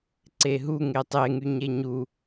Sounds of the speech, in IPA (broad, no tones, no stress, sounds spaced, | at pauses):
ǀ e ɦ u ŋ e tˤ e ŋ y ɲ e ɲ u